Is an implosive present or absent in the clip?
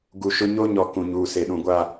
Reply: present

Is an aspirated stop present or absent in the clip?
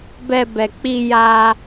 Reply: absent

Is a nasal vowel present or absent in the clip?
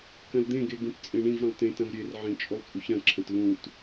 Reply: present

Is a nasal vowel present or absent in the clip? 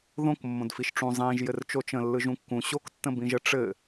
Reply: present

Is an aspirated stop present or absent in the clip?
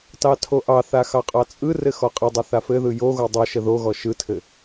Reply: present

